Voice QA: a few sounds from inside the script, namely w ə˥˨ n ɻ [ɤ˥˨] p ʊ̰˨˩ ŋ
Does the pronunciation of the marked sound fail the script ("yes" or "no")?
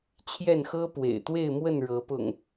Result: yes